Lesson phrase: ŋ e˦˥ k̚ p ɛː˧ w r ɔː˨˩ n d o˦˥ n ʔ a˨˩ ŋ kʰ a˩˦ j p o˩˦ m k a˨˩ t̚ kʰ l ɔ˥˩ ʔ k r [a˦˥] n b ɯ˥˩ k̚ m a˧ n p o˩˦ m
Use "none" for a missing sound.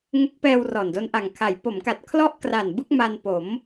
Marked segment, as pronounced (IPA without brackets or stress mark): a˨˩